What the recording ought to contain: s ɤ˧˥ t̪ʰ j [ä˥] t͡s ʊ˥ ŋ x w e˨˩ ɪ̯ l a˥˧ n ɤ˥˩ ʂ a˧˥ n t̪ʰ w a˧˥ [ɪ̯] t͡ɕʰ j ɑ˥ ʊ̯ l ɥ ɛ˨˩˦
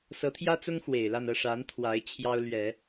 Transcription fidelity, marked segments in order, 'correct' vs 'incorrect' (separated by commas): correct, correct